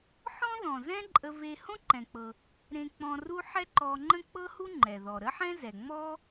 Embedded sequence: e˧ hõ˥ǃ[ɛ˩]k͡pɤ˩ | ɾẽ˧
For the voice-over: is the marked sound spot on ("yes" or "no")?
no